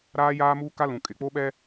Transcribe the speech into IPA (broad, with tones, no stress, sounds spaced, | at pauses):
ɾ aː˦ j aː˦ m uː˦ k a˦ l ũ˨ kʼ ɪ˨ k͡p o˦ ɓ ɛ˦